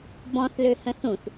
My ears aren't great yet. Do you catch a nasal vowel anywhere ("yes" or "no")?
yes